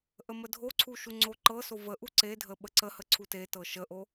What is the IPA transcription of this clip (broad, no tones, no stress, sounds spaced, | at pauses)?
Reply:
ʔ ə m ə dʱ o ǀʰ u ʃ u ŋ͡ǀ o ǃ ɤ s o v ə ʔ u ǀ e dʱ ə ɓ ə ǀ ə h ə ǀʰ u t e t ɤ ʃ ə ʔ o